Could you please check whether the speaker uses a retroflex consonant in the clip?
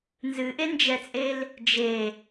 no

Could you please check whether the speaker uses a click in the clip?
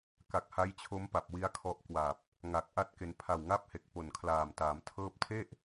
no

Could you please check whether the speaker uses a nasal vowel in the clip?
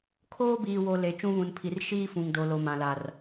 yes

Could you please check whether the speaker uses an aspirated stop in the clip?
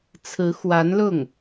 yes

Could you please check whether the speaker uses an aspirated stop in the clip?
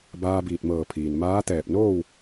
yes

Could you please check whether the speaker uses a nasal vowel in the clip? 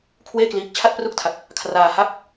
no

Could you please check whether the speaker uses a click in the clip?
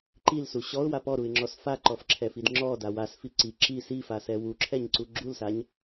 yes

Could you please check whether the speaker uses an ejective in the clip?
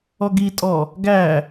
yes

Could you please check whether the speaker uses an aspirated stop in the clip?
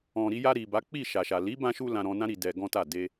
no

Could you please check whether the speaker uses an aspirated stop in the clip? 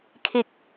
yes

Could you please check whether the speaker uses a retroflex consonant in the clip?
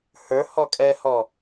no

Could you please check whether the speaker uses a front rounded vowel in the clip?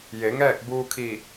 no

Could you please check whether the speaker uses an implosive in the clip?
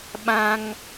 yes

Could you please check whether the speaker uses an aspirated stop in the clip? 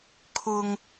yes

